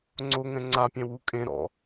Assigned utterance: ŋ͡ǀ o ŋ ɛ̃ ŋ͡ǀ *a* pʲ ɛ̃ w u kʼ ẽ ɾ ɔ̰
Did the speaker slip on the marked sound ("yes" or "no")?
no